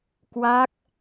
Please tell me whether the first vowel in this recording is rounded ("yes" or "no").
no